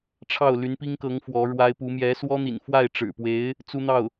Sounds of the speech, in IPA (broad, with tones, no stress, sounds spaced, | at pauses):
ʈ͡ʂʰ ɑ˥˩ ʊ̯ l y˧˥ n p i˥ ŋ k ɤ˧˥ ŋ f w ɔ˧˥ ɻ w a˥ ɪ̯ p u˧˥ m j ɛ˧˥ s w ɔ˥ n̪ ḭ˨˩ n f w a˥˩ ɪ̯ ʈ͡ʂ ɻ̩˨˩ p w e˧˥ ɪ̯ | t͡s u˥ n̪ ɑ˥˩ ʊ̯